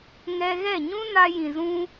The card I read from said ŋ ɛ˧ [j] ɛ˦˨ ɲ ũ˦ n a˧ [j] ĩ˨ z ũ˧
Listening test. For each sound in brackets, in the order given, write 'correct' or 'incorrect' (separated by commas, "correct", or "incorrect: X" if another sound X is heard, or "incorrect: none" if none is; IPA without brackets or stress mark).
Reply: incorrect: ɣ, correct